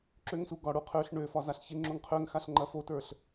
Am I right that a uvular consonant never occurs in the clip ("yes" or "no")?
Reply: no